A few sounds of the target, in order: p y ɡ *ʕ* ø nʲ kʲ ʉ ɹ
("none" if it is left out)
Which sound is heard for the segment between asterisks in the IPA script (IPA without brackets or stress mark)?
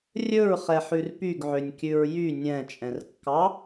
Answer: ʕ